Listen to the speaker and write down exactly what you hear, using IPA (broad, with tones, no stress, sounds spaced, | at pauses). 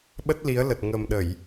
ɓ ə˦˥ t̚ l i˨˦ ə̯ l ə˨˩ t̚ ŋ ə˨˩ m ɗ ə˧˩˨ j